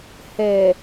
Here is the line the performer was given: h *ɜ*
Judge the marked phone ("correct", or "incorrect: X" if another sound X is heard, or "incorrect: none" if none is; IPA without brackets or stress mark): incorrect: ɛ